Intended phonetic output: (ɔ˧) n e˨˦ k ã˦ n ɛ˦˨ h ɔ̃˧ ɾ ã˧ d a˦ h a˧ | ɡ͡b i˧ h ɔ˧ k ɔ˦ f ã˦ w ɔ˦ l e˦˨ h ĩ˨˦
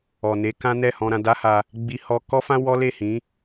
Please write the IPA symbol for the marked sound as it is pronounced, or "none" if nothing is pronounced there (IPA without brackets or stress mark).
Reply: ɔ˨